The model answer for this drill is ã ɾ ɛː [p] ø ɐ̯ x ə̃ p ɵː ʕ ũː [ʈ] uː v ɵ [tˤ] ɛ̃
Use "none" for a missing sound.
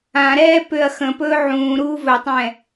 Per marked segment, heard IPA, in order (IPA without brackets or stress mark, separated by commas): p, ɾ, tˤ